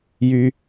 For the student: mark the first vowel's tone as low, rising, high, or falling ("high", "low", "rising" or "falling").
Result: high